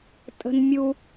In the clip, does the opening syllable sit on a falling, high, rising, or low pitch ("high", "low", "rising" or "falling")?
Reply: high